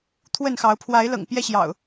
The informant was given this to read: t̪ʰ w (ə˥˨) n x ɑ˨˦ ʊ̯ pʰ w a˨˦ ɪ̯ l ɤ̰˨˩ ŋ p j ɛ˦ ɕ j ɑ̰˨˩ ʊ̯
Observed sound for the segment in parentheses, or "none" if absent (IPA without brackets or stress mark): ə˥˨